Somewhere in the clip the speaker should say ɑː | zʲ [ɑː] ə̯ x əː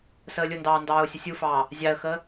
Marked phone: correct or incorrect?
incorrect